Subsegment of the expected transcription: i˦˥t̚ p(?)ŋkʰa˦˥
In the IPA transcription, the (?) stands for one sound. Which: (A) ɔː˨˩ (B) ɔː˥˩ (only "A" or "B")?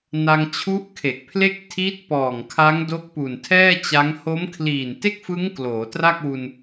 A